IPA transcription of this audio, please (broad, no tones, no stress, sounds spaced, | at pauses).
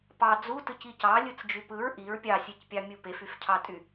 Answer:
p ɑ d͡z u t ɯ c i c ɑ lʲ ɯ t͡s d͡ʒ y p ɯ ɹ ʔ i ɹ pʲ ɑ sʲ e c pʲ ɑ mʲ u p e f y f cʰ ɑ tʼ y